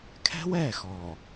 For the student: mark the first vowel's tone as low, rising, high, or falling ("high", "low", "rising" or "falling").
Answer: high